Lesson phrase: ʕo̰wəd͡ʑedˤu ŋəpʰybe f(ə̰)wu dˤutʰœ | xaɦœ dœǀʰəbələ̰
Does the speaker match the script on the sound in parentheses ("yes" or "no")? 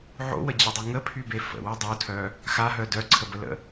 yes